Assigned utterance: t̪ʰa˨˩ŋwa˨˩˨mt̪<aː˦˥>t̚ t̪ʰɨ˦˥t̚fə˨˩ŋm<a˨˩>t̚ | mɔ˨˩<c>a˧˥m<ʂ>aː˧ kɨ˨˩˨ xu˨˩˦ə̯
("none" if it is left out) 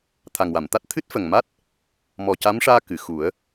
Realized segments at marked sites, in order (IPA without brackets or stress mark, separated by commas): a˦˥, a˦˥, c, ʂ